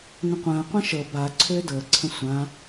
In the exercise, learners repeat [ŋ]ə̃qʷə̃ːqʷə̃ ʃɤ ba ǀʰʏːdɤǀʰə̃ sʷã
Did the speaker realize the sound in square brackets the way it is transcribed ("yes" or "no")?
yes